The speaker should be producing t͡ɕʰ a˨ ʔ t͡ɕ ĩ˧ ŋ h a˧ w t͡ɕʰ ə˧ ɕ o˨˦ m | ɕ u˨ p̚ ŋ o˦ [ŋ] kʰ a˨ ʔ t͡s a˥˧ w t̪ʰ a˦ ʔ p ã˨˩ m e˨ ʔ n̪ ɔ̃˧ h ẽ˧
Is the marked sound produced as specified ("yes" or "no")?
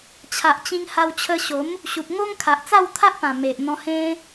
yes